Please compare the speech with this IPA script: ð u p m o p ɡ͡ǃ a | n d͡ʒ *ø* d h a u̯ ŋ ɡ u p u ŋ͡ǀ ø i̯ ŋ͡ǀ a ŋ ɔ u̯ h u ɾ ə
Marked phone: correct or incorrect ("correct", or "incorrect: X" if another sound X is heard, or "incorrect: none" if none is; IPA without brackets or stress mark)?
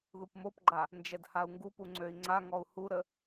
incorrect: ɛ